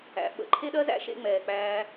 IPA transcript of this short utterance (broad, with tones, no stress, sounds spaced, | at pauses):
æ̰˨ ɓ ə̰˧ ǃʰ e˦ ɗ ɜ˦ z æ̰˦ ʃ ḛ˧ ŋ͡m ɛː˨ k͡p æː˧